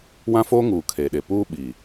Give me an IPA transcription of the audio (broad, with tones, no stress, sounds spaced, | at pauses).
w ã˦ f oː˦ ŋ uː˨ kʰ e˨ ɗ e˨ p uː˦ ɓ i˨